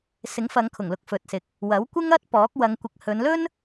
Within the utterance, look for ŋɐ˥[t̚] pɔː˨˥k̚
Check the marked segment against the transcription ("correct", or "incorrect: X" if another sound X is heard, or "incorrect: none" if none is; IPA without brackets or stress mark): correct